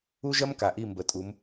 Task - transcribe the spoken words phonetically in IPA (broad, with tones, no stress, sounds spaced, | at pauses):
u˥ ʒ ɐ˥ m k a˩ ʔ i˧˩ m b ə˩˧ tʼ u˩˧ m